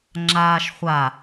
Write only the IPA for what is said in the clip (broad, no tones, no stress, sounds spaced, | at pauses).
ŋ͡ǁ aː ʃ χʷ a